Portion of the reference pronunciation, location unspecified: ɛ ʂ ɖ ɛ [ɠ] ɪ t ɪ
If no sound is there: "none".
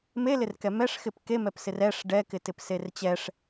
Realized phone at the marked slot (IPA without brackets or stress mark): k